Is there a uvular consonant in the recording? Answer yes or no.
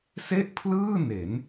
no